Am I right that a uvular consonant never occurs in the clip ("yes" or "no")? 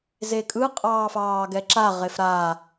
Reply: no